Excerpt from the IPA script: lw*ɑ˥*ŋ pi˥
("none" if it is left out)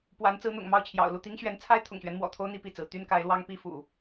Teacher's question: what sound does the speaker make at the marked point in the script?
ɑ˥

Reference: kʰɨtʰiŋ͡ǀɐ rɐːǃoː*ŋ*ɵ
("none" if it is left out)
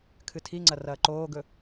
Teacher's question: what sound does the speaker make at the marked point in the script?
ɡ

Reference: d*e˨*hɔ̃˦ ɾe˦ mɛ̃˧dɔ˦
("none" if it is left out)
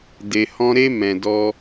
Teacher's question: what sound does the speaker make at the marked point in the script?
e˧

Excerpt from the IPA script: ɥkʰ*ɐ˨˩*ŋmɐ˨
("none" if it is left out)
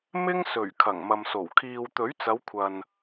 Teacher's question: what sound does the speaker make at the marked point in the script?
ɐ˨˩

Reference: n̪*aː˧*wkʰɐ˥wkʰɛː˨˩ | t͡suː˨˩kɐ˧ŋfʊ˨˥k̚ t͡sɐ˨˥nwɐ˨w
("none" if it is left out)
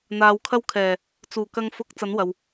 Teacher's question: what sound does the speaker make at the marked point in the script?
aː˨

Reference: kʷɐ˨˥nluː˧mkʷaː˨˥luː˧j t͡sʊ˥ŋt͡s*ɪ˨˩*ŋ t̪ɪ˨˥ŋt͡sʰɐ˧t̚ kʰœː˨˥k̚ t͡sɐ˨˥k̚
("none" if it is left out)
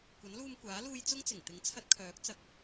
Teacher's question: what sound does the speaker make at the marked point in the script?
ɪ˨˩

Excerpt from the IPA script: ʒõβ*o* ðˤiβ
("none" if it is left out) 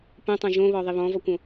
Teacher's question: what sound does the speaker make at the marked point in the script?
ɔ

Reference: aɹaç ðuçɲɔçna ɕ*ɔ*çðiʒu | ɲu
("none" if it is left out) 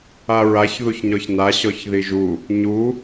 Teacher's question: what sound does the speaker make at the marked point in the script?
ɔ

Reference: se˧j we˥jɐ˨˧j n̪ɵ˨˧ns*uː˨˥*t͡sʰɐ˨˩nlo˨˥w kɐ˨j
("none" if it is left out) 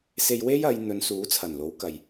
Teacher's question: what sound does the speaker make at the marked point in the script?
uː˨˥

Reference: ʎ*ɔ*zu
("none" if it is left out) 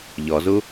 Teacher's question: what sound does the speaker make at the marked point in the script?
ɔ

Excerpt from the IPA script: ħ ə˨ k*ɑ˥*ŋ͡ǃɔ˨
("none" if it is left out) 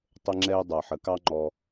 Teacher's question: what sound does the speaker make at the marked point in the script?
ɑ˦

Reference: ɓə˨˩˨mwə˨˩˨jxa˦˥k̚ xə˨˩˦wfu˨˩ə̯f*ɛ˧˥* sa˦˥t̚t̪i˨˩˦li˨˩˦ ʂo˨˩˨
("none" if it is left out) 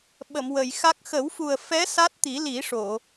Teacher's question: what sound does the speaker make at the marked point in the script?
ɛ˧˥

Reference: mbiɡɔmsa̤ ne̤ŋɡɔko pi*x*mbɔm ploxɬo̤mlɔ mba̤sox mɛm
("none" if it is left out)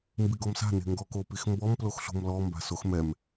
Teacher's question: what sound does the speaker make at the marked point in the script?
x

